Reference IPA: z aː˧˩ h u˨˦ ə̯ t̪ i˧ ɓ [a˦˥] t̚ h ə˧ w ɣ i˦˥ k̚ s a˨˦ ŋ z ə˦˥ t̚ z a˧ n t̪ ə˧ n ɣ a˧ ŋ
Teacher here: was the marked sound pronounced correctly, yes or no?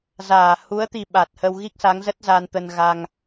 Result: no